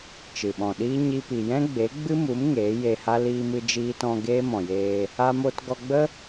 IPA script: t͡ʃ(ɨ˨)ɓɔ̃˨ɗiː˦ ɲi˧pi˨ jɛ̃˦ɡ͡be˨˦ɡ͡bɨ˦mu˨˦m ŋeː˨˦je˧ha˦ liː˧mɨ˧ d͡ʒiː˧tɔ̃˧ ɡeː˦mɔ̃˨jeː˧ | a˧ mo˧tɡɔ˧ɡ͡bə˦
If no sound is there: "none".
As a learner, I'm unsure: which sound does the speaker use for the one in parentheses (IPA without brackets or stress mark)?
ɨ˨